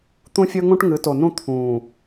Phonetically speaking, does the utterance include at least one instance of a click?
no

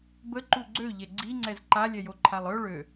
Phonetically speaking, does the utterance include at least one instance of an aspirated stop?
yes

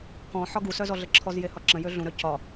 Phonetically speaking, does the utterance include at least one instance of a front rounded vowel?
yes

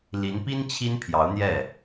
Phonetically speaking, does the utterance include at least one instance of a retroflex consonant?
no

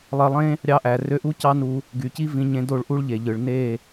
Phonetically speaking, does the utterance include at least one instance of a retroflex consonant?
yes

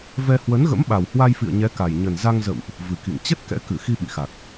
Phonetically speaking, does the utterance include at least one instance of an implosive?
yes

